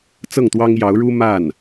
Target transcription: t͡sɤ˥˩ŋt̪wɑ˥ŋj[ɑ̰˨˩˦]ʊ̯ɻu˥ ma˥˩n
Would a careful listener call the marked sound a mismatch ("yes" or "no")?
yes